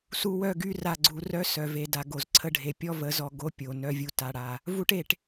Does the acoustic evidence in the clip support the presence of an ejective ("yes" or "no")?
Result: no